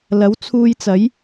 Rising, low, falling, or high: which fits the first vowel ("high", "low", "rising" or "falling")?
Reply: rising